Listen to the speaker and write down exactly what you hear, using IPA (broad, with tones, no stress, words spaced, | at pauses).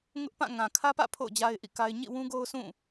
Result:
ŋʊ˦ʔpã˦˨ ŋã˨kʰä˦pä̰˦˨ pʰo̰˦˨ʊ̯d͡ʑa˦ɪ̯ʔḭ˦˨ka˦ɪ̯ ɲḭ˦˨wũ˦ɡo˦ʊ̯ sʰũ˦˨